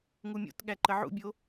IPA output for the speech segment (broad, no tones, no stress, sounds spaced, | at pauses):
ŋ u mʲ o̰ t ɠ æ ǃ ə ʕ ṵ bʲ o